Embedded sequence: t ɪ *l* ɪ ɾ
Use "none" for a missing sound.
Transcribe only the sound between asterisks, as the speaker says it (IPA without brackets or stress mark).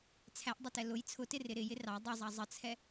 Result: r